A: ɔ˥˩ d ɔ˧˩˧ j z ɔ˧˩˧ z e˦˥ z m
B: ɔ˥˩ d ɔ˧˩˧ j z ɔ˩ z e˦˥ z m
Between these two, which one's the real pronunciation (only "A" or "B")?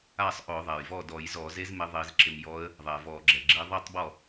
A